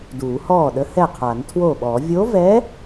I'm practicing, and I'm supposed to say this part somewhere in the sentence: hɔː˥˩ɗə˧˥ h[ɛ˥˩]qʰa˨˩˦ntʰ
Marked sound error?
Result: no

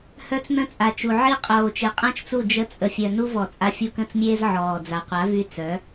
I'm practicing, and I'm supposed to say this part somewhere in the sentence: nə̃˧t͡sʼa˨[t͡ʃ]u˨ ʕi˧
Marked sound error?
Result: no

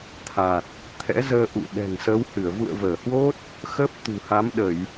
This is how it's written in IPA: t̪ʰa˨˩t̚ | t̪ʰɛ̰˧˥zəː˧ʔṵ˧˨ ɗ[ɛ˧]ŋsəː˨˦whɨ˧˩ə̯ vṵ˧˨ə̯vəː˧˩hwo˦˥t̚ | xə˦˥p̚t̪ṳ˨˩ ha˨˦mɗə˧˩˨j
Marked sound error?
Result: yes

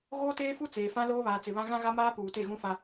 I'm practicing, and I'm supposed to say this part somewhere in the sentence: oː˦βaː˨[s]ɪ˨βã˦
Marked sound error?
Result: yes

